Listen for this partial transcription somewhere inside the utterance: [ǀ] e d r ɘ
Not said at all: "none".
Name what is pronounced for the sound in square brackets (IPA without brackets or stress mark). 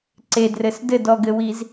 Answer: ǀ